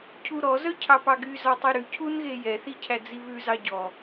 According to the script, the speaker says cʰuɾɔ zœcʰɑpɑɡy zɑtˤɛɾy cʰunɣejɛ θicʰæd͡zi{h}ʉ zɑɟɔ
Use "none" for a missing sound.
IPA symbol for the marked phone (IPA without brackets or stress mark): β